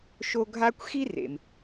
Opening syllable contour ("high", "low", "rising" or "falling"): high